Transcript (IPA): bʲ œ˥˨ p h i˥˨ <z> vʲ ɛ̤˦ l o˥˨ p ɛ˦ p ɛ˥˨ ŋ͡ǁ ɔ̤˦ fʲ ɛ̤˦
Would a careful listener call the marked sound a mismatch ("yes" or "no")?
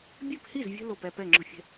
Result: no